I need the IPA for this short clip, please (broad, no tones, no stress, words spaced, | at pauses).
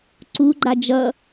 ǀuɡ͡ǃa d͡ʒʌ